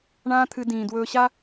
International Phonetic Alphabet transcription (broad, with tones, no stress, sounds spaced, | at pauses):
ɳ ãː˦ t̪ʰ ɨ˧ d ĩː˨ d w ɵː˧ ɕ a˦